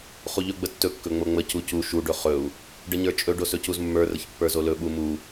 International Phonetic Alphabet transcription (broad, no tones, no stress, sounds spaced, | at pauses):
χ u ʎ ɵ ɡ͡b ə tː ɵ kː ɵ ŋ͡m o ŋ͡m ə c u c u ʃ u ɖ ɵ χ ɵ u̯ | ɖ ə ɲ ə˞ t͡ʃʼ ɵ ɖ o s ɵ c u z mː ə˞ r ə ç pː ə˞ z o l ɵ ɓ u m u